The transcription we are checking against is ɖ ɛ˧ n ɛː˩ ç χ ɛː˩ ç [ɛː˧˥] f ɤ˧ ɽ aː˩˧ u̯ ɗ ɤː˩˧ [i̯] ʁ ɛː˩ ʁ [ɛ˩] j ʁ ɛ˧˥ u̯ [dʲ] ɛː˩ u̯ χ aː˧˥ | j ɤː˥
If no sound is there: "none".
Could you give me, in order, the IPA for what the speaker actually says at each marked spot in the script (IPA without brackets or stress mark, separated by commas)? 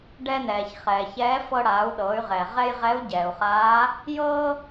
ɛː˧˥, y̯, ɛ˧, ɟ